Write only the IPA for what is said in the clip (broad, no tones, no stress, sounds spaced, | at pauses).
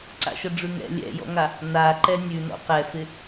ǀ a̰ ʃ ə ɖ͡ʐ ʉ ŋ ɛ̰ lʲ ɛ̰ j ɔ̰ ŋ a | n a ǃ ɛ nʲ ʉ n ɔ̰ q ɛ f ɪ